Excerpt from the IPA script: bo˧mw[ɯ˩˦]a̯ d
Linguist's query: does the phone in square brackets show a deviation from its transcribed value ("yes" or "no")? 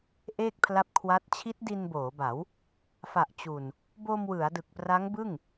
no